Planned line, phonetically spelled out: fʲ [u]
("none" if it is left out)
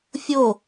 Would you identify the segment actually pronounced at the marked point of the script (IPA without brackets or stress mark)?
o